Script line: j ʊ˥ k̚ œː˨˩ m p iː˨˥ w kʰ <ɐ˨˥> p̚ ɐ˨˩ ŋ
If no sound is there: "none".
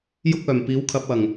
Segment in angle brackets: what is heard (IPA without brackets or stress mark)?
ɐ˨˥